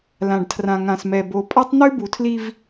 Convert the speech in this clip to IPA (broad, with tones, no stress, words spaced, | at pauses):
lã˨ɖtʰrã˨ŋã˨smɛ˨ bo˨pʼa˦tˤn̪ʉ˦ bu˨tʰli˦v